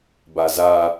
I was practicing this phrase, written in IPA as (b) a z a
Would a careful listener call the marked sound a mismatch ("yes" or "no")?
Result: no